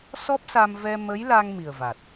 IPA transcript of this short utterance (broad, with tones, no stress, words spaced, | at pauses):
sɔ˦˥p̚sa˧m vɛ˧mə˧˥jla˧ŋ mi˨˩ə̯va˨˩t̚